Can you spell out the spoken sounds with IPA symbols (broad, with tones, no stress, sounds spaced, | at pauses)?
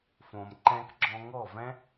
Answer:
f õ˨ m ǃ ɛ̃˧ k ɡ͡ǁ ɔ̃˧ ŋ ɔ˦˨ v ɛ̃˦